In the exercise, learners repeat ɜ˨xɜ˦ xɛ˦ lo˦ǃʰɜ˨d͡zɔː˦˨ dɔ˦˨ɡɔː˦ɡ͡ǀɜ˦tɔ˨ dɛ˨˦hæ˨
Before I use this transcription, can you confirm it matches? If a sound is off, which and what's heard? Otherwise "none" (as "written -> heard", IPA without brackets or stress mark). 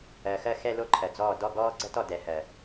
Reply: æ˨ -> ɜ˨